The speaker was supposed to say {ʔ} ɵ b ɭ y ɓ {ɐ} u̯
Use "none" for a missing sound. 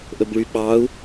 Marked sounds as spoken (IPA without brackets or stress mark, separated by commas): ʔ, ɑ